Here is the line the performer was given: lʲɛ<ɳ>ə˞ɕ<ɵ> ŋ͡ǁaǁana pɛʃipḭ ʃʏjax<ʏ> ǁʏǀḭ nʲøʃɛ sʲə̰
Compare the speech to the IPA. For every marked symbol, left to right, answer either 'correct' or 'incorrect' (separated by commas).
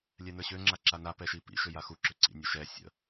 incorrect, incorrect, incorrect